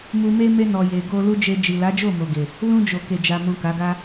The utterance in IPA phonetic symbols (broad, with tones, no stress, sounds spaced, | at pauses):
m u˧ m e˦ m e˧ n ɔ˨ j e˨ ɡ o˧ l u˦ d͡ʒ e˧ d͡ʒ i˨ l a˨˦ d͡ʒ o˦˨ m o˨ ɡ e˨ | l ũ˧ d͡ʒ o˨ k e˨ d͡ʒ a˨ m ũ˨ k a˨˦ ɡ a˦